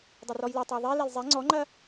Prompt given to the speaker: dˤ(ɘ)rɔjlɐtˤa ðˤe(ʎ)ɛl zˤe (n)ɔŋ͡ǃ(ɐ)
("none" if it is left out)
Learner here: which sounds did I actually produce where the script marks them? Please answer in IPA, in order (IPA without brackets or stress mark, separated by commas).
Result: ɘ, l, ŋ͡ǀ, ɐ